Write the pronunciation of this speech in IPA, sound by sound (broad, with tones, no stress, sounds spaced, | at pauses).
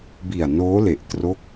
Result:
b i˨˩ a̯ n oː˦˥ l e˨˩ ʔ t r o˦˥ k̚